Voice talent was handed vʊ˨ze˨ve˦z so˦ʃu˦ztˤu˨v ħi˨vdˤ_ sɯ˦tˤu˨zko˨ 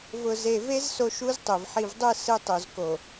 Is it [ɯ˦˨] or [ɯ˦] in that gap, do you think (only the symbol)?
ɯ˦˨